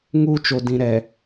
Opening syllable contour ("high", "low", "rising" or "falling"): high